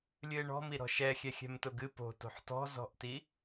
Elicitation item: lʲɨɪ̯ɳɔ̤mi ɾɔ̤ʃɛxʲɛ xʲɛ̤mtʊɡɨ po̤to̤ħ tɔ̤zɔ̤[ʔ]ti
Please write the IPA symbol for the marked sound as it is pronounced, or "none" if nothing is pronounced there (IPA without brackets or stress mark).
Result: ʔ